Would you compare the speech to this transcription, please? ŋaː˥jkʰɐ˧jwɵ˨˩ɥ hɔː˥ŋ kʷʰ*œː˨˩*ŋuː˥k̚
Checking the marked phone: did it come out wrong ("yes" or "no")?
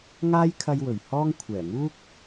yes